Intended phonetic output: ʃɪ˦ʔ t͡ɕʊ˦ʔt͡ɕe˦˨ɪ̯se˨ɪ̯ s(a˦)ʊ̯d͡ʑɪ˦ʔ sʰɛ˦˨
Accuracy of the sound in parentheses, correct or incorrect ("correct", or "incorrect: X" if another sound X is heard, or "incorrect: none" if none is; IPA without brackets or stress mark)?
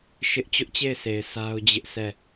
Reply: correct